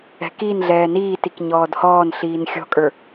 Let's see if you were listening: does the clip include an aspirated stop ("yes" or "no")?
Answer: no